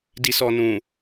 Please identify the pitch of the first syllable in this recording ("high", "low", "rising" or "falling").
low